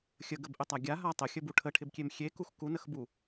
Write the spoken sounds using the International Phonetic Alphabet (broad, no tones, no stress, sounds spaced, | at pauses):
xʲ ə ɡ ə b ʔ ɪ tˤ a ɡʲ a ɦ a tˤ ə xʲ ə b u ʈʰ ə ʈʰ ɪ b kʲ e m xʲ e k u x k u n ə x b u